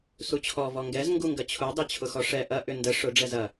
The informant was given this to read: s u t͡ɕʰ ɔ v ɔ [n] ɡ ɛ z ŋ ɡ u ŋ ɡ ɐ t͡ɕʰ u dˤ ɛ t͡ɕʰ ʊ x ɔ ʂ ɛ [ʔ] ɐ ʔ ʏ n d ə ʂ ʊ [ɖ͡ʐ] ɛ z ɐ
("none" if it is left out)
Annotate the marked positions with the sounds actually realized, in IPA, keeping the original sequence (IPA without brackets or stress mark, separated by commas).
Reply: ŋ, ʔ, ɖ͡ʐ